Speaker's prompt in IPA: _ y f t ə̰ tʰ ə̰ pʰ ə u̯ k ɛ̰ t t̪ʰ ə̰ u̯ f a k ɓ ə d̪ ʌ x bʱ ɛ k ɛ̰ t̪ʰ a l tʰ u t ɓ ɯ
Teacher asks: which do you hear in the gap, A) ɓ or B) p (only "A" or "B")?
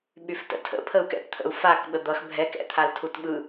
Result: A